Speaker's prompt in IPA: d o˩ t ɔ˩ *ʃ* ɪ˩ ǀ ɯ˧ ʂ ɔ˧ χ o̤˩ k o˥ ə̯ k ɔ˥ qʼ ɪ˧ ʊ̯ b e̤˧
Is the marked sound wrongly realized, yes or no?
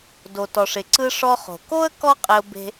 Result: yes